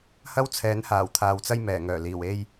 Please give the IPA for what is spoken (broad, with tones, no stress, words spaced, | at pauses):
hɐ˥wt͡sʰɛː˨˥nhaː˨˩w t̪ʰaː˨wt͡sɐ˥j mɛː˨˩ŋœː˨˩liː˨˩w e˧j